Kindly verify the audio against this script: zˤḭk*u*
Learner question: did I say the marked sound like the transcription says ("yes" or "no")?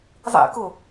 no